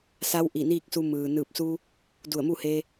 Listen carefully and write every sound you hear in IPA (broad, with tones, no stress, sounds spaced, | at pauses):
s a˧˥ w ʔ i˧˩ n iː˥˨ k̚ s u˧ m ɯː˩ n ɯː˧˩ p̚ s u˧ | d u˧˩ ə̯ m u˥˨ h e˧